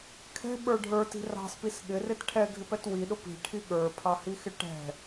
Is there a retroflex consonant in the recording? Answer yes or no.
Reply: yes